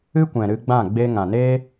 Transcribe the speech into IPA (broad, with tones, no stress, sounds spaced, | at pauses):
ɨ˦ kʷ ɛ̃˨ ɾ ɨ˧ ɡ͡b ã˦˨ ɡ͡b eː˧ ŋ ã˨ n eː˦